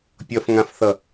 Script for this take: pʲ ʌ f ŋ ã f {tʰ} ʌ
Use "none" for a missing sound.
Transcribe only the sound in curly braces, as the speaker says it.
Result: θ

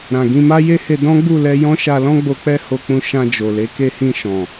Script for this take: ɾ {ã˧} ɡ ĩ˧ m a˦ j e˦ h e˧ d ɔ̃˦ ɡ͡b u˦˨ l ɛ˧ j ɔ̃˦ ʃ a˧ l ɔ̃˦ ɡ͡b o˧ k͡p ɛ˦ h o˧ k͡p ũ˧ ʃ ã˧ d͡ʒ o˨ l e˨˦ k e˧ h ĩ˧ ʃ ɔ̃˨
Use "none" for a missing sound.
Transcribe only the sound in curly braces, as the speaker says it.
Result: ã˨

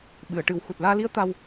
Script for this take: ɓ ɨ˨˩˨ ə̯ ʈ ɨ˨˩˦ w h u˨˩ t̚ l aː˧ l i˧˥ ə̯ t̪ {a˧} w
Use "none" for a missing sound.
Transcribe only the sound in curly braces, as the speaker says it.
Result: a˧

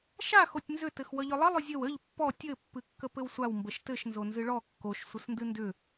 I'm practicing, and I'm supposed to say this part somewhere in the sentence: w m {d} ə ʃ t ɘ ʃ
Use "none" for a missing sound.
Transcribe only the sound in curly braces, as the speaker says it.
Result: b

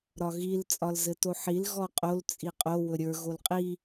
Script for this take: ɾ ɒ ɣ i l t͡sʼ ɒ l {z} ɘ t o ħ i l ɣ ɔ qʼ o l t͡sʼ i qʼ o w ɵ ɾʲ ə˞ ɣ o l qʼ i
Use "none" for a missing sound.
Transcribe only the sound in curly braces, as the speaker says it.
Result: z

